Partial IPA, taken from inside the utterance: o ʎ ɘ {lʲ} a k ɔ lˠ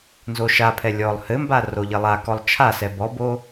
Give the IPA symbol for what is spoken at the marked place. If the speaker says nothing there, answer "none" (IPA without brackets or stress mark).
lˠ